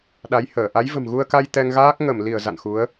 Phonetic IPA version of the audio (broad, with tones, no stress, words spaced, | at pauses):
ɗa˨˦jhəː˧˩ ʔa˨˦jvə̤˨˩mɣu˧ə̯ka˧j t̪ɛ˧ŋɣaː˦˥k̚ ŋə˧˩mli˧˩ə̯ za̰˧˨nxu˨˦ə̯